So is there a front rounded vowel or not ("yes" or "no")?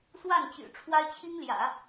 yes